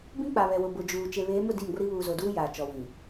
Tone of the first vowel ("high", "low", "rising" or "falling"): high